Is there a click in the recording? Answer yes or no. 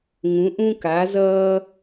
no